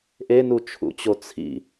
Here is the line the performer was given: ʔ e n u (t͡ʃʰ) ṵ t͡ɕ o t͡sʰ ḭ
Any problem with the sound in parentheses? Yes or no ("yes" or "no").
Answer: no